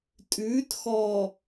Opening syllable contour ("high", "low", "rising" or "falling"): rising